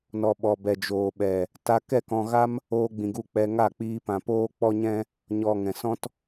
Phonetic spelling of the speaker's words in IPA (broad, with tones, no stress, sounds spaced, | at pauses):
n ɔ˨ ɓ ɔ˨ b ɛ˨ d͡ʒ oː˨ ɓ ɛ˨ | t a˧ k ɛ˦˨ k ɔ̃˧ ɣ a˦ m | oː˧ ɡ͡b ĩ˨ ɡ u˧ k͡p ɛ˧ ŋ a˦˨ k͡p iː˧ p ã˨ p oː˦ k͡p ɔ˦ ɲ ɛ̃˦ | ɲ ɔ˨ ŋ ɛ̃˨ s ɔ̃˦ t